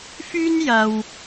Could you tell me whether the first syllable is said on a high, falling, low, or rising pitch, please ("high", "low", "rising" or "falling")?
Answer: high